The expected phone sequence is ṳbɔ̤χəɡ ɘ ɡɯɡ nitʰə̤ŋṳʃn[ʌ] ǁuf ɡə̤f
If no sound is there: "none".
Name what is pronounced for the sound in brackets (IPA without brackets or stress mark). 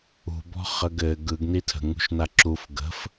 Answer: a